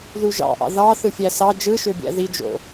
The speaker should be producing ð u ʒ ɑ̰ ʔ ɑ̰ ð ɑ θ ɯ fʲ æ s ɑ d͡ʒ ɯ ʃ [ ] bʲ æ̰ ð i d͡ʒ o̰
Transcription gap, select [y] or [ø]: ø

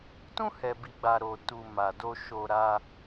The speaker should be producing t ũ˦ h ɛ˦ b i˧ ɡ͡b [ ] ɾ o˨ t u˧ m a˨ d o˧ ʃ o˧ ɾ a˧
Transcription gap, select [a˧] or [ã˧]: a˧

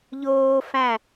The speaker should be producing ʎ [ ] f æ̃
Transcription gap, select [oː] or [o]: oː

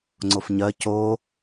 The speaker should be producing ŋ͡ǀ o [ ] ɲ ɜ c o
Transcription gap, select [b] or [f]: f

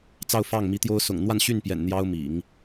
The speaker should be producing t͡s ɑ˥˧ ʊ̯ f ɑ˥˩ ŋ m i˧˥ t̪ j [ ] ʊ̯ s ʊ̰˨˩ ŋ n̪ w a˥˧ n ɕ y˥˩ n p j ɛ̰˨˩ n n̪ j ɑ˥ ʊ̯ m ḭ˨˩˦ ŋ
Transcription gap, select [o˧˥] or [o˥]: o˥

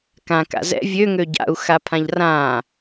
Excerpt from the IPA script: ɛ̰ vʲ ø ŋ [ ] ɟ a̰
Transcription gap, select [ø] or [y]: ø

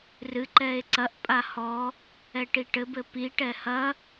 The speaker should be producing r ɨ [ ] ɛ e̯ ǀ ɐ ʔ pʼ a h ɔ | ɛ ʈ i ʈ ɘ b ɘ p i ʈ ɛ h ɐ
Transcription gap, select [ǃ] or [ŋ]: ǃ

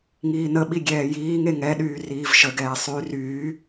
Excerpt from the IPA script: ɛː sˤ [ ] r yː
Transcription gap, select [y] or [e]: y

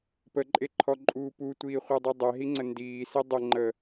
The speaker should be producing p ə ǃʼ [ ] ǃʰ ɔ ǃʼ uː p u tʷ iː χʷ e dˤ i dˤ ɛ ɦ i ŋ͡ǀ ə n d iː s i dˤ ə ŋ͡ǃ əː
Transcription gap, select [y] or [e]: e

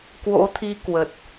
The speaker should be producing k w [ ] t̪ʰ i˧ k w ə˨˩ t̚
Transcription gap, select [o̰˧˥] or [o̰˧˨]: o̰˧˥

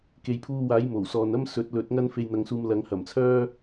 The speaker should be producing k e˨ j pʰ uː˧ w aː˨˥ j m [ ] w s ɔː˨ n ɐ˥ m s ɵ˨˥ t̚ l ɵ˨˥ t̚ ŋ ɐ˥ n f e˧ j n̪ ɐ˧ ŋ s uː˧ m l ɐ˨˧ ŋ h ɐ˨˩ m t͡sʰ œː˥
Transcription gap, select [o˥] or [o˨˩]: o˨˩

